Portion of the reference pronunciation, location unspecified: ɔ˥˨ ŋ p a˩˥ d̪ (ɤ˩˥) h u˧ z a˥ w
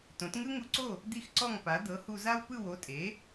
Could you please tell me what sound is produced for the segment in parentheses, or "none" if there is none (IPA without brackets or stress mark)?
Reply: ɤ˩˥